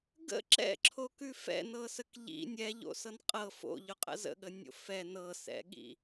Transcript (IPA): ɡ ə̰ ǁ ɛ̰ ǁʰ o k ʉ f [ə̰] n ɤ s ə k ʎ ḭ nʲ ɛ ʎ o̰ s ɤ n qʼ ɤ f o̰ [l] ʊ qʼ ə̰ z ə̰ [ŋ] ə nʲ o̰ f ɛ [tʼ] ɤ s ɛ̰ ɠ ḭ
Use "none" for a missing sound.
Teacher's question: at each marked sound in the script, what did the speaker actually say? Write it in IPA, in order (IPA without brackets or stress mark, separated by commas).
ɛ̰, ʎ, ɠ, n